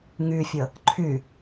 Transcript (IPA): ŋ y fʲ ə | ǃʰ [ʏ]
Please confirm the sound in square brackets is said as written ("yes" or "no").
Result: no